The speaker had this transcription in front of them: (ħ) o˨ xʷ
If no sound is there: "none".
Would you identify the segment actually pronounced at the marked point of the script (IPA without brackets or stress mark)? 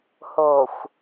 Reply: h